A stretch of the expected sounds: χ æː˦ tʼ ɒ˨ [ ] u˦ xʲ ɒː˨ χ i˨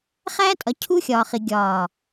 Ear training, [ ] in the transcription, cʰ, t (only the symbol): cʰ